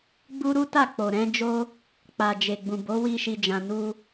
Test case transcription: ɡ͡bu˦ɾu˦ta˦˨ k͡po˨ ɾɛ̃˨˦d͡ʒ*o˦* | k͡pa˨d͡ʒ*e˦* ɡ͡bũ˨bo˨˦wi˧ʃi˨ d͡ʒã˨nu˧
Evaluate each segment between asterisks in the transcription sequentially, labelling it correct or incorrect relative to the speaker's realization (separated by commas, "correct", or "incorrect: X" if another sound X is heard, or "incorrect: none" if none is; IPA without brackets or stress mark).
correct, incorrect: e˨